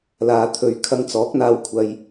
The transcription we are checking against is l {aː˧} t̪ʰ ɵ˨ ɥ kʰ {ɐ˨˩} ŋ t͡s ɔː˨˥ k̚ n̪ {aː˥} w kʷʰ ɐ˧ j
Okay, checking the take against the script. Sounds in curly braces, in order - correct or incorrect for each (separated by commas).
incorrect, incorrect, incorrect